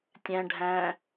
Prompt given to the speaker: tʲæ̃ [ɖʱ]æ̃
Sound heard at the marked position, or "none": ɖʱ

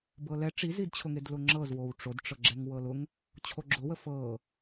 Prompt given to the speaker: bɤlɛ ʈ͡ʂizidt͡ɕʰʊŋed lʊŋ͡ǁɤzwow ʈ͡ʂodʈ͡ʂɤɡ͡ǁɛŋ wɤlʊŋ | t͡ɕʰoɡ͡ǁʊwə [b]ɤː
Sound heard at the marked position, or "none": f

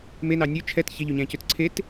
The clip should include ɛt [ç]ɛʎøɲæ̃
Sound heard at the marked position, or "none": ç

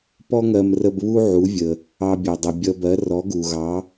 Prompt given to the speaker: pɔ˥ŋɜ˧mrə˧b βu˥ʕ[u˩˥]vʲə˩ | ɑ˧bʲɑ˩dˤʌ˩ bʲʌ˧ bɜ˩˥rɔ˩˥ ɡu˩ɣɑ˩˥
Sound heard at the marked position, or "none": u˩˥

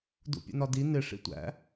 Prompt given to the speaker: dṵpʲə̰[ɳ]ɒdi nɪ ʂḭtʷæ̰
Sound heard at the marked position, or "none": n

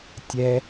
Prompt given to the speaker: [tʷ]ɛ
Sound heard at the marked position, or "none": tʲ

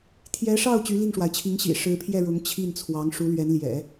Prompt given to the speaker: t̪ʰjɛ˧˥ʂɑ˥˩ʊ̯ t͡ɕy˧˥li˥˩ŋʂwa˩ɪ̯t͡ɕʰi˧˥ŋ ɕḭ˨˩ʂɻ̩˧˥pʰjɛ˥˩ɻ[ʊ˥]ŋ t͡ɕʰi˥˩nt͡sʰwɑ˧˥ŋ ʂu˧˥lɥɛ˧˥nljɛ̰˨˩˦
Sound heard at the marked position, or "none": ʊ˧˥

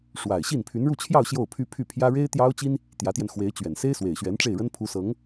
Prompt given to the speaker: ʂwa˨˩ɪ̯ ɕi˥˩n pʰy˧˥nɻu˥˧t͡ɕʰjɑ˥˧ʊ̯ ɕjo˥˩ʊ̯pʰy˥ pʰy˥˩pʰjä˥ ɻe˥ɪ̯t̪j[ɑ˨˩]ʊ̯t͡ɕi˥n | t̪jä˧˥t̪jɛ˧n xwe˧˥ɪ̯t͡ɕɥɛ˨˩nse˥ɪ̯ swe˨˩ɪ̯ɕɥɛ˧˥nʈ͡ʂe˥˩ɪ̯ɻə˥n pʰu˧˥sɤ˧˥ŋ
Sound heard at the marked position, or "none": ɑ˥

